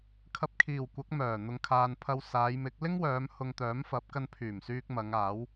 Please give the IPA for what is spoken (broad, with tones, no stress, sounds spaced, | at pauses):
kʰ ɐ˧ p̚ kʰ iː˨˩ w kʷ ɐ˨˥ k̚ m œː˨˩ n̪ ʊ˨ ŋ kʰ aː˨ n pʰ ɐ˧ w s aː˨˧ j m ɪ˨˥ k̚ l ɪ˥ ŋ w œː˨˧ m h ʊ˧ ŋ t̪ œː˨˥ m f ɐ˨˥ p̚ k ɐ˧ n pʰ yː˨˩ m s yː˧ k̚ m ɐ˨˧ ŋ aː˨˥ w